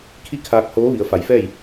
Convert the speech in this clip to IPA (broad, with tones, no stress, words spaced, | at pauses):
kʰi˥˨ kʰaː˧k̚hoː˧˥ ʋi˩˧ə̯fa˩˧jfɛː˥˨j